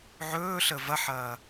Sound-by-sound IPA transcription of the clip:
ʕ ɵː ɬ ə v ɐ ħ ɐː

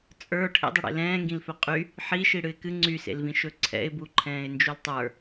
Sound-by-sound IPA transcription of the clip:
t͡sʼ ə˞ ʈʰ ḛ dˤ ɵ ɽ ḛ l ɛ̃ː ŋ ɡ ĩ l f ɵ qʼ y | ħ i ʃ i ɽ ɨ ɪ̯ k ɨ ŋ͡ǀ y s ḛ l v ĩ ʃ ɵ ǀʰ ɛ̰ ɪ̯ b u ǃʰ ɛ̃ː ɪ̯ n d͡ʒ u l tˤ ə˞

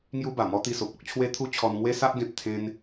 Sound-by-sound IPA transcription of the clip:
ŋ j u˦ b a˨˩ m ɔ˦ t̪ i˧ s o˨ p̚ ɔ˦ k̚ t͡ɕʰ w e˦ t̪ʰ u˦ t͡ɕʰ ɔ˧ n ŋ w e˦ s a˦ ʔ ɡ ẽ˨ p̚ t̪ʰ ẽ˧ n

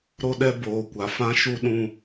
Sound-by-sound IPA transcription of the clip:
ɾ o˦ ɗ ɛ˦ b oː˨ kʷ a˨ f ã˦ ʃ u˦ ɗ ũ˦

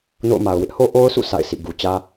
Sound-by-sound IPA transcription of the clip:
n o̰˦˨ ʊ̯ m a˨ ʊ̯ w ɪ˦ ʔ h o˦ ʔ o˦ ʊ̯ s ṵ˦˨ s a̰˦˨ ɪ̯ s ḭ˦˨ ɡ u˨ t͡ɕ ä˦

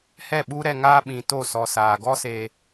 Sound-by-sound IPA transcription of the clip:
h ɛ˦˨ ɓ u˦ ɾ ɛ˧ ŋ aː˦ ɓ ĩ˨ t o˦˨ s ɔ˨ s aː˨ ɡ ɔ˦ s eː˧

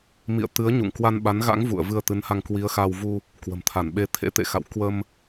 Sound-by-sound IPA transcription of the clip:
m ḭ˧˨ ə̯ t̪ ɨ˨˦ ə̯ ɲ ṵ˧˨ ŋ k w a˧ n ɓ a˨˦ n ɣ a̰˧˥ ŋ v ṵ˧˨ ə̯ v ɨ˧ ə̯ t̪ ɨ˨˦ n h a˧ ŋ k w i˨˦ ə̯ x a˧ w v u˧ | k w ə̤˨˩ m t̪ʰ a˧˩ n ɓ e˧ t̪ʰ ḛ˧˥ t̪ ḛ˧˨ x a̰˧˨ w k w ə˧ m

